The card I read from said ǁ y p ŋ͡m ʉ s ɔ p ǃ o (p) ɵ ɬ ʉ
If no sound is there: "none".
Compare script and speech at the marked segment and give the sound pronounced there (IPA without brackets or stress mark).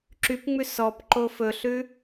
f